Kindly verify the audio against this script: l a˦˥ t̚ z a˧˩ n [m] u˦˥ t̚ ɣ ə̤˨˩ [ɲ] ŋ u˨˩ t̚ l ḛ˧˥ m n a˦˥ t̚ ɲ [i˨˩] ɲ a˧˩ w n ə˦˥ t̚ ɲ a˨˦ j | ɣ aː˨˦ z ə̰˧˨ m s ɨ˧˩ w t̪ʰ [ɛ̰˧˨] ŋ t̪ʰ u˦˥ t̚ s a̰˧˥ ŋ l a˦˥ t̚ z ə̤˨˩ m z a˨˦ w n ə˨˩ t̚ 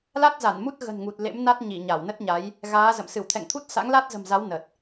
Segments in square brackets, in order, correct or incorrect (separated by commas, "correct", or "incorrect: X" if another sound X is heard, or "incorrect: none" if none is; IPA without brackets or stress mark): correct, incorrect: n, incorrect: i˧˩, correct